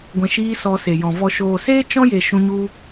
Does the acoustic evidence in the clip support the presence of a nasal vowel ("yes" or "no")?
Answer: yes